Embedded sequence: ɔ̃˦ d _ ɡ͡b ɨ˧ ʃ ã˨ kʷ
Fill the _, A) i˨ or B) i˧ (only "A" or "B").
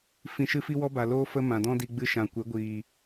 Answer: B